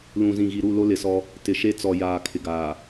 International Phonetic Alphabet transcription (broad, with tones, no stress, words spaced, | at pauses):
lũ˨zĩ˨ɣi˨ɾu˦˨ lo˦lɪ˨sɔ˦ | tɪ˨ʃe˦t͡sɔ˨ jaː˨ kʰɪ˨ɡaː˨